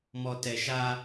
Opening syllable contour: low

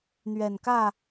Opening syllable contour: low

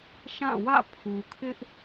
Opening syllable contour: falling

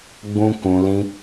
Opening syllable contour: high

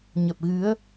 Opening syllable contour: low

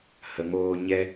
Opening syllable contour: low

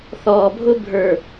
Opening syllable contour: low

